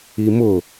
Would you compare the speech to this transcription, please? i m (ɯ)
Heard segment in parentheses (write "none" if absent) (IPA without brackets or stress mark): ʊ